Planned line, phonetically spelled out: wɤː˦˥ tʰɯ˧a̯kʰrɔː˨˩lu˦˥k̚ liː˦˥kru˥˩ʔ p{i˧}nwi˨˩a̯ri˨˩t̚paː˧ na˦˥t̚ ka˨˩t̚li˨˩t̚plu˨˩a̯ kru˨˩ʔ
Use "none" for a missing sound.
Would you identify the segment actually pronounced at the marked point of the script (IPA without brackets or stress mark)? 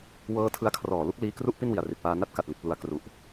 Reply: i˥˩